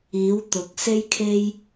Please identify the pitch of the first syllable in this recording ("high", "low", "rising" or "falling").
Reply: rising